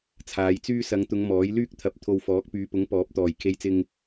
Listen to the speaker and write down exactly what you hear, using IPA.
t͡sʰ aː˨˧ j t͡s yː˥ s ɐ˨˧ ŋ t̪ ʊ˨˧ ŋ m ɔː˨˥ j l yː˥ k̚ t̪ʰ ɐ˨ p̚ t̪ʰ o˧ w f ɔː˨˥ k̚ p yː˨˧ p ʊ˨˥ ŋ p ɔː˨˥ p̚ t̪ ɔː˨˩ j kʰ e˧ j t͡s ɪ˧ ŋ

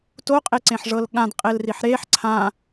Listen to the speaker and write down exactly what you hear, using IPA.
t o qʼ e ǀ ẽ ħ ʐ ɤ l ɠ ã d qʼ e l r i ħ ɾ e ħ ǀʰ ã

